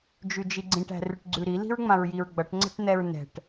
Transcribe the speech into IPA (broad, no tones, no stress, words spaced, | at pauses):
d͡ʒʉd͡ʒiɡ͡ǀĩʈ æ̤rʉʈɡ͡ǀʉɾi li̤ɹŋ͡mãɹjiɹɡ͡bʌʈ ŋ͡ǀɛ̤ʈn̪ɛɹnɛ̤ʈ